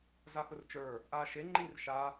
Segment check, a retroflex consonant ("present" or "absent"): absent